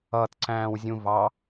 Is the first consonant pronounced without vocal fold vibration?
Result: yes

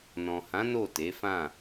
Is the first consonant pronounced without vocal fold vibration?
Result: no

